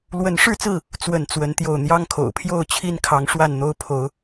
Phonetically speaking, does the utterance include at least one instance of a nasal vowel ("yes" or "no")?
no